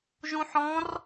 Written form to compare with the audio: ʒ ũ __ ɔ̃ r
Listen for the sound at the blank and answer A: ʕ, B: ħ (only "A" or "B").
B